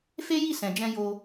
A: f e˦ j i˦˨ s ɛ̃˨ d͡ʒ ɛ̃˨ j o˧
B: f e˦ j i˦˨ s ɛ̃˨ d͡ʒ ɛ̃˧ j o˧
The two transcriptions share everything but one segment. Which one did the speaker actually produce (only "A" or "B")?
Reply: B